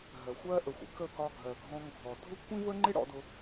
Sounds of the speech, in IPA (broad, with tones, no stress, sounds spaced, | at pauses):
ɦ ɜ˨ xʷ ɜ˦ ʔ ə˨ xʷ ə̰˦ k ə˦˨ k ɒ˧ ɡʱ ɜ˨ ɡʱ ɔ̃˧ ŋ ɡʱ ɔ˨ dʱ ʊ˦ kʷʰ ĩ˦ v ə˦ ŋ͡ǃ ɪ˦ ɽ ɔ̰˦ d ʊ˦